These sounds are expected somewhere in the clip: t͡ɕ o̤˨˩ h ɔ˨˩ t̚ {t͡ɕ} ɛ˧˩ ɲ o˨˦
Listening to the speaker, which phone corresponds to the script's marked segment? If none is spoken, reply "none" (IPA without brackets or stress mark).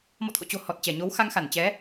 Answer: t͡ɕ